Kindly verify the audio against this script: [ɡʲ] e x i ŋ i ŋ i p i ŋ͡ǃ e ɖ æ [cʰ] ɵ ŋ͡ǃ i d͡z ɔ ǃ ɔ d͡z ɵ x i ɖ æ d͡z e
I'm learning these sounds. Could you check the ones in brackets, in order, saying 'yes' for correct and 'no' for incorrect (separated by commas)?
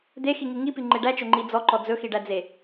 no, no